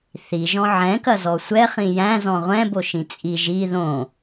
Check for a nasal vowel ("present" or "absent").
present